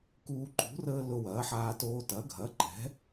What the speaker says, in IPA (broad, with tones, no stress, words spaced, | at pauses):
kuː˦ ǃṳ˨˥rəː˦ lʊ˦wɐː˨˥ħaː˦toː˦ tɐ˨˥ɡʱɐ˨˥ǃɛ̤˨˥